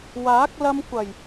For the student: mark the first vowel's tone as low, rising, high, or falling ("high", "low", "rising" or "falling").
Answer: rising